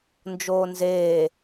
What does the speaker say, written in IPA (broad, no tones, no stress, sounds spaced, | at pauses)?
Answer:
n d͡ʒ oː n z eː